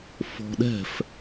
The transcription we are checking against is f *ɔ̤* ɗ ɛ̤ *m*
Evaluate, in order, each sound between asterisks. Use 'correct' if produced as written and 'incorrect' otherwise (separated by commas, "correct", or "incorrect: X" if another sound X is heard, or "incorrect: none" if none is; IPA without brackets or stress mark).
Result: correct, incorrect: f